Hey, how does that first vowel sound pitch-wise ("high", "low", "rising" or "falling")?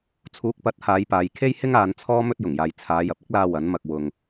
rising